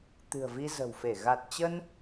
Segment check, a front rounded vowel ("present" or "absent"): absent